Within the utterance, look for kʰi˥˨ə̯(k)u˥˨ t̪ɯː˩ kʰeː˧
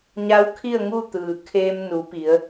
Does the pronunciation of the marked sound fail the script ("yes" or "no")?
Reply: yes